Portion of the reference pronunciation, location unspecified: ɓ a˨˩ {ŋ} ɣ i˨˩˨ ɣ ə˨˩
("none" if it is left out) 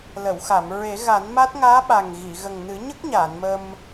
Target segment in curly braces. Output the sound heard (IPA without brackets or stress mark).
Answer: ŋ